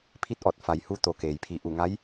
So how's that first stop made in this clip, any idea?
aspirated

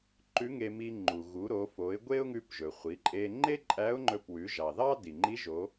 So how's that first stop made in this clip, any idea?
click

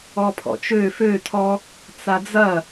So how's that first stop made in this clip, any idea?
aspirated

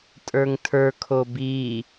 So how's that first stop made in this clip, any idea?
ejective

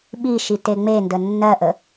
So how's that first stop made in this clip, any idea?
implosive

